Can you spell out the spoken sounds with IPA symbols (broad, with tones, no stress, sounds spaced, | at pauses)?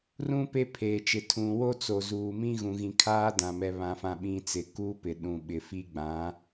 r ũ˦ p e˦ pʰ eː˨ t͡ʃ ɪ˨ tʰ ũ˨ w o˦ t͡s o˨ z uː˨ m ĩ˦ ɣ ũ˨ ɣ ĩ˨ kʰ aː˦ d ã˨ m ɛ˨ β ã˨ f ã˨ ɓ ĩ˨ t͡s ɪ˨ k uː˦ p ɪ˨ ɗ ũ˨ ɓ ɪ˨ f i˦ ɡ͡b ã˨˦